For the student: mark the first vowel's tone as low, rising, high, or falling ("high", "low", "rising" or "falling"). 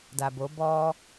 low